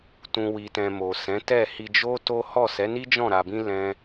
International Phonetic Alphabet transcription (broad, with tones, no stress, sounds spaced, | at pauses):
t ũ˨ w i˨ t ɛ̃˨ m o˨ s ɛ̃˨˦ t ɛ˦˨ h i˧ d͡ʒ o˦ t o˦ h ɔ˦˨ s ɛ˨˦ n i˦ d͡ʒ ɔ̃˦˨ ɾ a˧ b ĩ˦ l ɛ̃˦